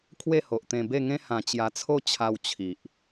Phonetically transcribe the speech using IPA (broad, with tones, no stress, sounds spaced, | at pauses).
kʰ w e˥˧ h o˨ ʔ t̪ ẽ˧ b e˥˧ ŋ ẽ˦ h ã˨˩ t͡ɕ j a˨˩ t͡sʰ o˧ t͡ɕʰ a˧ w t͡ɕʰ i˨ ʔ